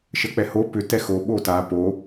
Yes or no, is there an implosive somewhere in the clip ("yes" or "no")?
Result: yes